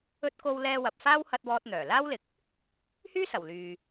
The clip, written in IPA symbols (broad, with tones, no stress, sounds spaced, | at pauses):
ɵ˧ t̚ k o˧ w l ɛː˧ w ɐ˨ p̚ f aː˥ w h ɐ˧ t̚ w ɔː˧ t̚ n̪ œː˨˩ l aː˥ w l ɪ˨˥ k̚ | h yː˥ s ɐ˨˩ w l yː˨